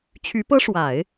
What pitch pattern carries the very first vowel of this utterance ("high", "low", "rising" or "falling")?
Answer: rising